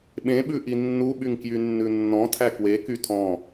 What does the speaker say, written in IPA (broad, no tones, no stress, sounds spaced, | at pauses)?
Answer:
ɓ ẽ ɓ ʉ ʔ i nː u ɓ y ŋ k j y nː ʉ nː ɔ̃ tʰ æ k w e k y tʰ ɔ̃